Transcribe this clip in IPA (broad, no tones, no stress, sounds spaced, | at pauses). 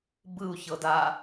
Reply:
b ɯ u̯ ç ɤ d a